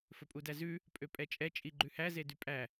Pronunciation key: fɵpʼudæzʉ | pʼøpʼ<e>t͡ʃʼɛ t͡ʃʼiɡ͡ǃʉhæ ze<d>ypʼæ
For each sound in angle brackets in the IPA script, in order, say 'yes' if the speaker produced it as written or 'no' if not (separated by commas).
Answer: no, yes